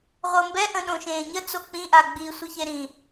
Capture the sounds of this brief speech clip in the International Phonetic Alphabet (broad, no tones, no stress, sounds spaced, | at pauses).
ʁʷ ɤ m b ɛ ʔ ə̃ ɗ õ ʃ ẽː ɲ ə t͡s o k͡p ĩ ʔ a ɡ͡b i sʷ i ç e ɾ ĩ